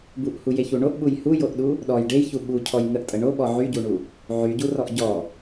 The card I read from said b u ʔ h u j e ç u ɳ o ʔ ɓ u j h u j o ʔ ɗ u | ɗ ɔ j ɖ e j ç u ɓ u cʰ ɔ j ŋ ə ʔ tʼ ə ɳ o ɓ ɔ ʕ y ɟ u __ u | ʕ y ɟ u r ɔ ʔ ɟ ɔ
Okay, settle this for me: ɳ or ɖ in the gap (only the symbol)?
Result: ɳ